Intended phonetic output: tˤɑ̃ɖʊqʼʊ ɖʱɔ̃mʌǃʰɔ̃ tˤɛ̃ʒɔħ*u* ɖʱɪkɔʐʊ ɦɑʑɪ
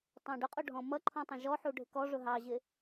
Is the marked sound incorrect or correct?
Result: correct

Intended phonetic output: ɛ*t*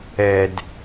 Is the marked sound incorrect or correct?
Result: incorrect: d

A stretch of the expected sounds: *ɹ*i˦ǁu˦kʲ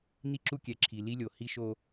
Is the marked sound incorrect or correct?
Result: incorrect: n̪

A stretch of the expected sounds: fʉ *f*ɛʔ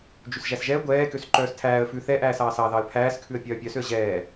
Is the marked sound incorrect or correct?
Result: incorrect: θ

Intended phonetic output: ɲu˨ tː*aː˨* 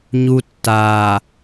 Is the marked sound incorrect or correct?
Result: correct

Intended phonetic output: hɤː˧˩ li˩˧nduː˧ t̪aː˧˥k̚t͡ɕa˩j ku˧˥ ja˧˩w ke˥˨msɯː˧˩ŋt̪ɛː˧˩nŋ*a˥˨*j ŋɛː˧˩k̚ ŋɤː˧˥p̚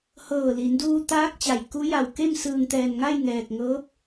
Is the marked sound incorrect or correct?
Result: correct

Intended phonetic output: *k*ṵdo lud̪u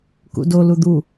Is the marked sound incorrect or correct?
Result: correct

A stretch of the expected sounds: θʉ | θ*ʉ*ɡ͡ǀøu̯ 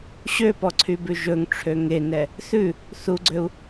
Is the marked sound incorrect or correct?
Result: incorrect: u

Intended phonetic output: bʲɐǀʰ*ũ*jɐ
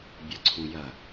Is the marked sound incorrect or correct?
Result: correct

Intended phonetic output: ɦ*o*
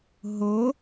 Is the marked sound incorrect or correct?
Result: correct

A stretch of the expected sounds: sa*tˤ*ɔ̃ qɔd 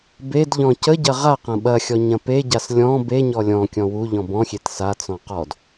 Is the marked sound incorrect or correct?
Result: incorrect: t͡s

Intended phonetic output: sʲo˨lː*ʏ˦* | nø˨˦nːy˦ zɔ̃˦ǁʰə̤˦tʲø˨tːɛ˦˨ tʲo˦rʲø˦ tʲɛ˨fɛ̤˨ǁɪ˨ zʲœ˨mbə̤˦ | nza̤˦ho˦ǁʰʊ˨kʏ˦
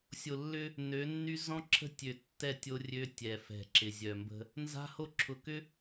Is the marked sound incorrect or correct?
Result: correct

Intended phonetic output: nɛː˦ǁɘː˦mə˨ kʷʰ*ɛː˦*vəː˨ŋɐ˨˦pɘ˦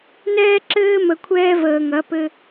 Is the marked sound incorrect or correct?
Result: correct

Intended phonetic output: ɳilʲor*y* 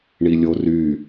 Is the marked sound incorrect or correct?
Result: correct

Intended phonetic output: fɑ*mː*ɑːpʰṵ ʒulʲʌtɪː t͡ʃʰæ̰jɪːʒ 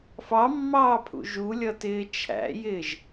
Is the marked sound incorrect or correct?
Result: correct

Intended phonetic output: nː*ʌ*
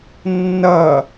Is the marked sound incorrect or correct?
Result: correct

